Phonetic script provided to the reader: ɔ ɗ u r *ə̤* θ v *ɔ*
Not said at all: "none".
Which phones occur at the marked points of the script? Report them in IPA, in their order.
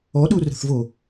ə̤, o

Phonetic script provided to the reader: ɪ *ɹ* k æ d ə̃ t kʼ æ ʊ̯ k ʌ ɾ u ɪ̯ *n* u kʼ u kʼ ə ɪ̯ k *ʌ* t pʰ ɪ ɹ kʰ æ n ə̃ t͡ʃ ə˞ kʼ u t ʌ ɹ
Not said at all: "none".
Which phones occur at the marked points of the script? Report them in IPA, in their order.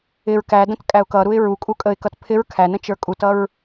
ɹ, ɹ, ʌ

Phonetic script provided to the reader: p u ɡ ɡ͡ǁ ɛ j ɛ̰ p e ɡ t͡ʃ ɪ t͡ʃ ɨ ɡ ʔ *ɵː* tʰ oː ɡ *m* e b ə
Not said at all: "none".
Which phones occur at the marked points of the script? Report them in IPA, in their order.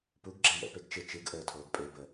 əː, pʼ

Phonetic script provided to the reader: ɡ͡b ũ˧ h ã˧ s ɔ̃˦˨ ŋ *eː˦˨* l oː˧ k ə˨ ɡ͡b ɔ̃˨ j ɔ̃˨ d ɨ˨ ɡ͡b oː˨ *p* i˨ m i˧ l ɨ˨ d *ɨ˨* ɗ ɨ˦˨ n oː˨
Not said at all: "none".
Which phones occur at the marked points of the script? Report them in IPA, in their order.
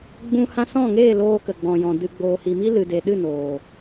eː˦˨, h, e˨

